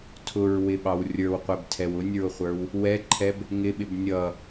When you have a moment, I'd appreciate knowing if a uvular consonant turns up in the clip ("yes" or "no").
yes